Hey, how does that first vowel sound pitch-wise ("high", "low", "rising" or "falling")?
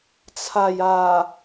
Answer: low